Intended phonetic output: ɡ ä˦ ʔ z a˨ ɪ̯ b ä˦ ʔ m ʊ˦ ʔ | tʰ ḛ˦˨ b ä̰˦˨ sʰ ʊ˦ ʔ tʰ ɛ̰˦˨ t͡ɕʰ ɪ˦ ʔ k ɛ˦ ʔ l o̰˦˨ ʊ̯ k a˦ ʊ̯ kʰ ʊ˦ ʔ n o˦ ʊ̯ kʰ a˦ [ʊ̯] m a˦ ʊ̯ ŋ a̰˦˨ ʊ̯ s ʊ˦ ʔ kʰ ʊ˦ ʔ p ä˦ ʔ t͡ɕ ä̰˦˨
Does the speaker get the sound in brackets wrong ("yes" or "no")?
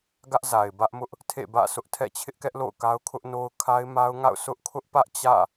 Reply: yes